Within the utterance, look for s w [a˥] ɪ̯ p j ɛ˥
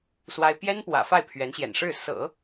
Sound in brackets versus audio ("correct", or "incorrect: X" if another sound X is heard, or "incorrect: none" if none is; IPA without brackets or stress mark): correct